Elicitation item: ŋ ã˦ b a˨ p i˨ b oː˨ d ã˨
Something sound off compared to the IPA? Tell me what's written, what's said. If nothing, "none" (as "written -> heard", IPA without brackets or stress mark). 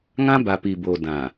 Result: none